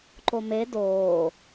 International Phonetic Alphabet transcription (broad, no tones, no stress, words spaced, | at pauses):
ǃome doː